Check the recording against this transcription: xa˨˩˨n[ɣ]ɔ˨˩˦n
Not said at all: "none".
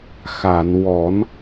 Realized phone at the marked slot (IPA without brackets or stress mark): w